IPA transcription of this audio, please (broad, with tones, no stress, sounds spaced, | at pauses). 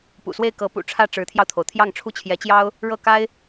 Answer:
p ṵ˨˩ s w e˥˩ ɪ̯ k ɤ˧˥ p ṵ˨˩ ʈ͡ʂʰ ä˥˩ ʈ͡ʂ ɻ̩˧˥ t̪ʰ j ɑ˧ ʊ̯ t̪ʰ o˩ ʊ̯ t̪ʰ j ɑ˥˩ ŋ ʈ͡ʂʰ u˥ t͡ɕʰ j ɛ˧˥ t͡ɕ j ɑ˥ ʊ̯ | ɻ ɤ˥˩ k a˥ ɪ̯